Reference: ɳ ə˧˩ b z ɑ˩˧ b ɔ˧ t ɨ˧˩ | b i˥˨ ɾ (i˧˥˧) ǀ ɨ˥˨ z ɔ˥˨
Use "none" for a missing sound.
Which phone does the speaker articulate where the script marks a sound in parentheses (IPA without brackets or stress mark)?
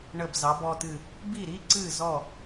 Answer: i˧˥˧